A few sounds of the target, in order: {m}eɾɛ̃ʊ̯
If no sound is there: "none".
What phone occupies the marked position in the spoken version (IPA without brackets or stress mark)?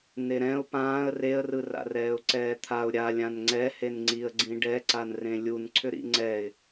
n